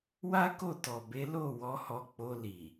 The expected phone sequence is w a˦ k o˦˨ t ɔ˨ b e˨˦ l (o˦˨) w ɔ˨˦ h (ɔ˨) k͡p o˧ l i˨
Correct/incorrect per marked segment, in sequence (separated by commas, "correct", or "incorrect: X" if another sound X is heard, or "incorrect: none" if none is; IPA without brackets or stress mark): correct, incorrect: ɔ˧